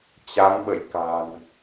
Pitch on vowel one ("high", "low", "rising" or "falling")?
rising